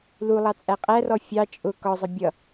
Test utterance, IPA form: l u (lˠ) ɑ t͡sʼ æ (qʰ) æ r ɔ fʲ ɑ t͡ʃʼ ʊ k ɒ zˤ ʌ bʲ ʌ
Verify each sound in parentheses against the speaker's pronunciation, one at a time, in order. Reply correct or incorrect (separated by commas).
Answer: correct, incorrect